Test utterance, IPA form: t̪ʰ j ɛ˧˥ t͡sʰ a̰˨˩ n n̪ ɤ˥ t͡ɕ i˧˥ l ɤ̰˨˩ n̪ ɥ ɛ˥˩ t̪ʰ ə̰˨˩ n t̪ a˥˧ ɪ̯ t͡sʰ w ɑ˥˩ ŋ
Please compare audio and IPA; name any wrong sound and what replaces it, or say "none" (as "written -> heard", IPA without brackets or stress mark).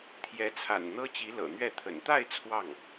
none